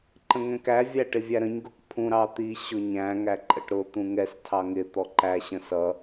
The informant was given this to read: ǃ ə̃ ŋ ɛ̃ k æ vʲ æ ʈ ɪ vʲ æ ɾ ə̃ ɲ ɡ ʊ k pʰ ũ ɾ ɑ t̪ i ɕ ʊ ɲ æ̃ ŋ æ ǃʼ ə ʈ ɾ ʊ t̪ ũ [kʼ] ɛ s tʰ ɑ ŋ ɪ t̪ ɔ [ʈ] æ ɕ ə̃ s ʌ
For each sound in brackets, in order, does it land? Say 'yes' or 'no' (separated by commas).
no, no